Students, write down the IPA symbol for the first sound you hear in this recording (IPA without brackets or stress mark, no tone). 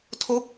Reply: tʰ